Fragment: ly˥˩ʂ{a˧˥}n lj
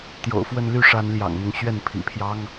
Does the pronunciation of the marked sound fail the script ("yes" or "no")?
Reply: no